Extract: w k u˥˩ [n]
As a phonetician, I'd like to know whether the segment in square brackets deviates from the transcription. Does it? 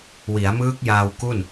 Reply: no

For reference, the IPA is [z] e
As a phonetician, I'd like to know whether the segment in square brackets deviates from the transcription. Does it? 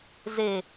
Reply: no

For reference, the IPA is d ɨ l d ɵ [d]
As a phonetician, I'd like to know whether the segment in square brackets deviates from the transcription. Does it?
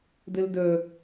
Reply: yes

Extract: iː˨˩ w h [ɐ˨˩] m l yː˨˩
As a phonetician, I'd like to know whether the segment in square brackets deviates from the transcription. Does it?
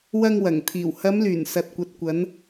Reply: yes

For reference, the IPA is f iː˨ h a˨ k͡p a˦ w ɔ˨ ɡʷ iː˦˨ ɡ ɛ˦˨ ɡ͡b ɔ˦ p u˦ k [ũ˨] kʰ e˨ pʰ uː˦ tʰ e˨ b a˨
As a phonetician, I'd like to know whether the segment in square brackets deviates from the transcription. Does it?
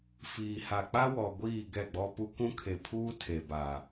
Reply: yes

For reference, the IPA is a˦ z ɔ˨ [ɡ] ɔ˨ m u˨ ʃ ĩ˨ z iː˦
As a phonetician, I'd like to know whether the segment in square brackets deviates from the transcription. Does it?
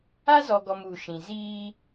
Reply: no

